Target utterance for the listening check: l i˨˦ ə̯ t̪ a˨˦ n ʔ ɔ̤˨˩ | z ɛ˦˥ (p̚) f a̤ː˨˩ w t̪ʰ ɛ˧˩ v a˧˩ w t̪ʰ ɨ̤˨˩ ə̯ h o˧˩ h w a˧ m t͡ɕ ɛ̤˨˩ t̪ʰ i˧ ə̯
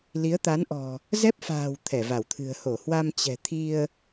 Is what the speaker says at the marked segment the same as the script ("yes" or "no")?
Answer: yes